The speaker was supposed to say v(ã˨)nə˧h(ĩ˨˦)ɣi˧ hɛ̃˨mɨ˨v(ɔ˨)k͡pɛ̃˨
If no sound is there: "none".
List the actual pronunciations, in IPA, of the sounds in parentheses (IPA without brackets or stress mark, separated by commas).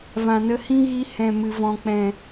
ã˨, ĩ˦, ɔ̃˨